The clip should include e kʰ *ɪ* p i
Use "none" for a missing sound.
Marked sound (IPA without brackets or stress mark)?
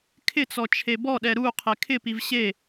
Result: ɪ